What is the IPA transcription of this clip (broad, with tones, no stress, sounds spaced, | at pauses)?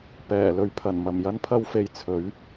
p ɛː˨˩ l ɵ˨˧ ɥ pʰ ɐ˨˩ n m ɐ˨˩ m j ɐ˧ n pʰ ɐ˧ w f e˨˧ j t͡sʰ ɵ˨˥ ɥ